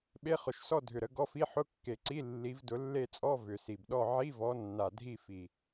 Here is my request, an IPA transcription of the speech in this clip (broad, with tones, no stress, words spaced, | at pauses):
ɓe˧˥˧χʊ˨˩ʃsɔ˥˧ dʱʏ˨˩ɾə˨˦ ɡɔ˧˥˧fi˧˥˧ ħʊ˧˥˧kːe˨˩ǀi˧˥˧ lːi˨˦vdʊ˨˦lːe˥˧t͡sʼɔ˧˥˧ vʏ˨˩si˨˩bɗɔ˥˧ ʕi˧˥˧vɔ˨˦nːa˨˩ dʱi˥˧fi˨˩